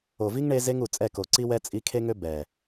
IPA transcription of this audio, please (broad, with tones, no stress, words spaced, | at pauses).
o˨vi˦ŋɳe˧ ze˦ŋu˨ t͡sʼɛ˦˨ko˨ ǀi˦wɛ˦ t͡sʼi˧kʰe˦ŋø˦ bɛ˨